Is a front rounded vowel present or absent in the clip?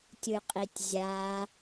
absent